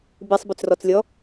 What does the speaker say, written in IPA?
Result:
b i sˤ b ø t͡s r ɔ t͡s lʲ ɔ

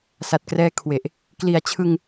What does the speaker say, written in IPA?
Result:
s a˨˩ t̚ k r ɛː˧ kʰ w e˨˩ ʔ | k l i˩˦ a̯ t͡ɕʰ ɯ˧ ŋ

